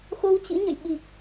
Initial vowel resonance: oral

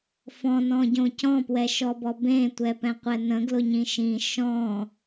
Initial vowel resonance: nasal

